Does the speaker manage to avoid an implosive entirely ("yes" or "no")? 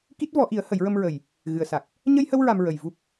yes